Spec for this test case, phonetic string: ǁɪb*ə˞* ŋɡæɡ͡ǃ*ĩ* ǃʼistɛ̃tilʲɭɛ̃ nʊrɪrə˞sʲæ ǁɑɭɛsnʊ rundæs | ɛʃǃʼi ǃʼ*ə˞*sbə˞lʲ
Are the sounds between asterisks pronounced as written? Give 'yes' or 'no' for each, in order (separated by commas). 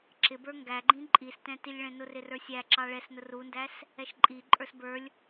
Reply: yes, yes, yes